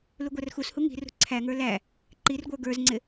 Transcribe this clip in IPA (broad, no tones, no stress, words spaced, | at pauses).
luɡʷærxushu ŋi̤rṳ ǀʰæŋə˞ læ | ǃirɡʷə˞ ɡə˞zŋ͡ǀɪ